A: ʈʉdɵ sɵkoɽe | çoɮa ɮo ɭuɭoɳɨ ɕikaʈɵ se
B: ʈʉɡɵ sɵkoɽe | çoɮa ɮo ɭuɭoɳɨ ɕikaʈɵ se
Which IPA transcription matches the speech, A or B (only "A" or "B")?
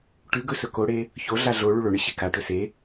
B